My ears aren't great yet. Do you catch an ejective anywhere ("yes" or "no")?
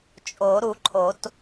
yes